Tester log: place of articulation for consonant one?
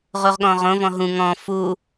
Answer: uvular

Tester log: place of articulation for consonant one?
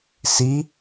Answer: alveolar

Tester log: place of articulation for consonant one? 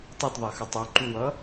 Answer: alveolar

